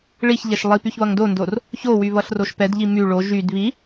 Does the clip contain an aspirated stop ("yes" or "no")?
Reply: no